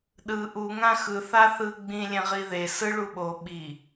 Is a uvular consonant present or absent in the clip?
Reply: present